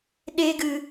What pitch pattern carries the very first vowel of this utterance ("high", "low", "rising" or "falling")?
high